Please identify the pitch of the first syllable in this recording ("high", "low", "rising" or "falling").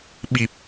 low